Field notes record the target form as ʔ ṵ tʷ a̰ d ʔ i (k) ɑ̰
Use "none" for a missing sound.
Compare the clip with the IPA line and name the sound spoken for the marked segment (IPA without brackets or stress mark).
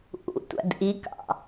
k